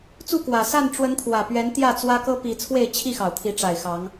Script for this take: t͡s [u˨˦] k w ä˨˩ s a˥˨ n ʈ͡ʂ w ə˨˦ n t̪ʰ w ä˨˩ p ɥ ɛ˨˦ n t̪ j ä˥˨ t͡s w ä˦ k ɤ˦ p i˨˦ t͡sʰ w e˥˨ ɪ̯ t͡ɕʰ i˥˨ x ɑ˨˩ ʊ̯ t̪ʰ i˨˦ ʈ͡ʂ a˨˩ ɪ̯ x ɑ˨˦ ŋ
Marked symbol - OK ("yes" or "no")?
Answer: no